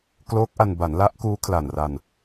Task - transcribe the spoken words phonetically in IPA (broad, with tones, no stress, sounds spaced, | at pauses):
k l oː˦˥ k̚ ʔ a˧ n b a˩˦ n l a˦˥ ʔ k uː˦˥ kʰ l a˨˩ n r a˧ n